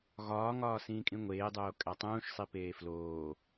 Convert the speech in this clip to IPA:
ɣɒːŋɒː sĩːkʼĩŋʷeːdˤoː kʼætˤũːʃsˤi peːfloː

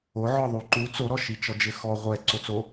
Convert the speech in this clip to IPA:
oʕɔ ðˤuǃu t͡soɾɔʃi t͡ʃɔd͡ʒɘxɔ ʁʷɛ ǀot͡so

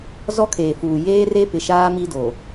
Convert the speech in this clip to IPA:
zɔ˦kʰeː˨fuː˨ jeː˦re˦pɪ˨ʃaː˦ mi˦do˨

